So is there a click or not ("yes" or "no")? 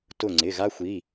yes